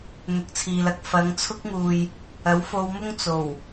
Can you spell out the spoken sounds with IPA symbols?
n̪ ʊ˨˥ k̚ t͡sʰ iː˨ l ɐ˧ k̚ f ɐ˨˧ ŋ t͡sʰ ʊ˥ k̚ ŋ uː˨ j | ɐ˨˥ w f o˧ w m ʊ˥ ŋ t͡s o˨˩ w

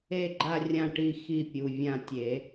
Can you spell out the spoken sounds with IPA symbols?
e˥˨ ɡ͡ǃ a˥˨ rʲ ã˥˨ ʈ i˥˨ x i˥˨ pʲ u˩˧˩ vʲ ã˥˨ tʲ e˨˩˦

